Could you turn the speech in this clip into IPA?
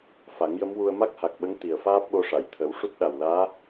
f a˨˩˦ ŋ j ə˧˥ m w u˧ ə̯ m a˦˥ k̚ h a˨˩ k̚ ɓ ə˧˥ ŋ t̪ i˨˩ ə̯ f aː˦˥ p̚ ɓ o˧ ʂ a˨˩˨ j t̪ʰ ə˨˩˦ w ʂ u˦˥ t̚ ɗ a˨˩ w l aː˧˥

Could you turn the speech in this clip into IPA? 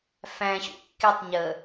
f æ̃ ɕ ṵ kː i tˤ ɲ ə

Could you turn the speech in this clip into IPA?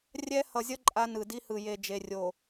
rʲ ɛ˦ h ʌ˨ zʲ ʌ˦ ǃʼ a˦ n ɯ˨ d i˦ h ɯ˨ j e˨ d͡ʒ e˨ rʲ o˨

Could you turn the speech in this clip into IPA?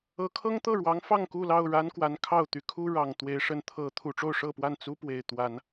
ɤ˨˦ kʰ ɤ˦ ŋ t̪ ɤ˥˨ ɻ w ɑ˨˦ ŋ f ɑ˥˨ ŋ k u˥˨ l ɑ˥˨ ʊ̯ ɻ a˦ n k w a˨˦ n kʰ ɑ˥˨ ʊ̯ t̪ y˨˦ kʰ u˦ ɻ ɑ˨˩ ŋ t̪ w e˨˦ ɪ̯ ʂ ə˨˦ n t̪ʰ ɤ˨˦ t̪ʰ u˨˩ ʈ͡ʂ o˥˨ ʊ̯ ʂ ɤ˥˨ p w a˥˨ n t͡s u˦ p w e˨˩ ɪ̯ t̪ w a˨˦ n

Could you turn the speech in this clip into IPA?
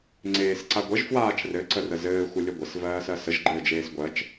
ŋ͡ǀ eː s ǀ a ɡʷ ə ʒ f w aː t͡ʃ r ɘ ǀ ə r ə z ɘː xʷ ə lʲ ɘ ɡʷ ɘ s v ɜː s ɜ s ə ʒ ɡ͡ǃ ɘː d͡ʒ eː s ɡʷ ɜ t͡ʃ

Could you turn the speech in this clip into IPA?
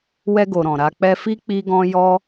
w ɛ˧ ɡ o˨ ɾ ɔ̃˨ ɾ a˧ k͡p ɛ˧ f i˦ k͡p i˦ ɡ ɔ̃˦ j ɔ˦

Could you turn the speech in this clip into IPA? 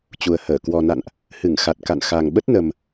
t͡ɕ u˨˩ ə̯ h əː˧˩ k w ɔ˨˩ n a̰˧˨ n ʔ | h ɨ˧˩ ŋ x a˨˩ t̚ k a̰˧˨ n x a˨˩ ŋ ɓ ə˦˥ t̚ n ə˨˩ m

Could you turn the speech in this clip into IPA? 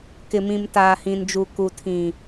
k ɪ˨ m ĩ˨ m t aː˨ h ĩ˨ n d͡ʒ u˨ k u˨ tʰ ĩ˨

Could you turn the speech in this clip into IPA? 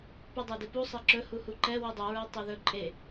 p ʉ dˤ æ d e p u sˤ ɛ ǁ ɵ h u h u ǃ ɛ w ʉ dˤ u ɹ œ tˤ ɵ ð ɵ ǃʼ e

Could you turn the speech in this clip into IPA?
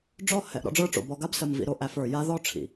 ɖ͡ʐ ɔ˦ h ɛ˨ ʔ ɾ ɔ̰˦ ɖ͡ʐ ə˞˦ ʈ͡ʂ o̰˨ b ɔ˨ ɡ a˦ b s ə˨ m v ḭ˨ ɾ o˦ ʔ æ˦ f ə˞˨ j a˦ ð ɔ˦˨ ʈ͡ʂʰ ḭ˨

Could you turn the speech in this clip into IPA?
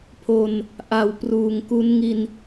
pʰ o˧ n | ʔ a˨˩ w p r uː˨˩ ŋ k u˦˥ n ŋ i˧ n

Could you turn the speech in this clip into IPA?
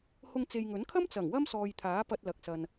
h ʊ˧ ŋ t͡s e˨ j ŋ ɵ˨˥ n kʰ ɐ˥ m t͡s ɐ˨˩ ŋ w ɐ˥ m s ɔː˨ j t̪ʰ aː˨˥ p ɐ˧ t̚ l ɐ˨ k̚ s ɐ˨ n

